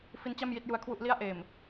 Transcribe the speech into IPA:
f i˦˥ n t͡ɕ a˥˩ m j i˥˩ t̚ j u˧ a̯ kʰ w u˥˩ ʔ l i˥˩ a̯ ʔ eː˨˩ m

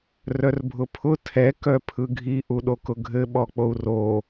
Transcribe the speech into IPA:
r œ r bʱ ʊ pʰ ʊ tʰ ɛ k œ pʰ ɯ ɡʱ i ʔ u ɗ o k ʊ ɡʱ ɘ ɓ ɔ k͡p o u̯ r o

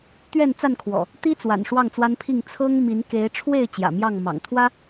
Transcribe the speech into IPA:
t̪ ɥ ɛ˥˨ n t͡s a˥˨ n kʰ w ɔ̰˨˩ | t̪ i˦ t͡s w a̰˨˩ n ʂ w ɑ˥˨ ŋ t͡s w a˦ n pʰ i˥˨ ŋ t͡sʰ ɤ˦ ŋ m i˨˦ n k e˨˦ ɪ̯ ʈ͡ʂʰ w e˥˨ ɪ̯ t͡ɕ j ä̰˨˩ m j ɑ˥˨ ŋ m ɑ̰˨˩ ŋ t̪ʰ w ä˦

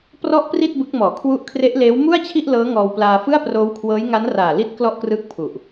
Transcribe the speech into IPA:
p r ɔ˥˩ ʔ p r i˥˩ t̚ b ɯ˦˥ k̚ m ɔː˨˩ kʰ w u˦˥ ʔ kʰ r e˦˥ ʔ l eː˦˥ w m u˥˩ a̯ t͡ɕʰ i˥˩ ʔ l ɤː˦˥ ŋ ɔː˧ w p l aː˧ f ɯ˥˩ a̯ p r oː˦˥ w kʰ w ɤː˦˥ j ŋ a˦˥ n r aː˨˩ l i˦˥ t̚ k l ɔ˥˩ ʔ k r ɯː˦˥ k̚ pʰ u˨˩ ʔ

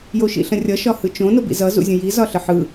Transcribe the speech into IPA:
j o ʃ ḭ ɬ ə̃ rʲ ʌ ʃ ɒ h ɯ t͡ʃ õ n o b ḭ z ʌ z ṵ zʲ ə̃ j i z ɒ ɬ ə ħ ɯ

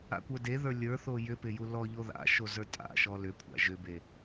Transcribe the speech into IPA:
a̰ kʷ ə˞ d e ð ə˞ lʲ ə˞ θ o j ʏ p ɪ j u l ɔ ʎ o ð a̰ ʃ o z ə˞ tʼ a̰ ʃ ɔ l ʏ kʷʰ a̰ ʒ ʏ b e

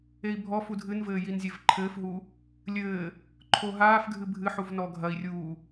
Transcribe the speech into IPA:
e i̯ bʱ ɔ f u dʱ ɨ n v ɘː j i n zʲ e v ǃʰ ɘː f ɦ u | lʲ ɘː | ǃʰ o ɦ aː f ɡʱ ɨ bʱ ɨ ħ u v n ɔ ɡʱ ɐ i̯ rʲ uː

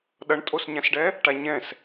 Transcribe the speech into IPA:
ɗ ʌ ɳ tʼ o s ɲ ã s ɖ ɛ | ʈ a ɲ ɛ̃ s

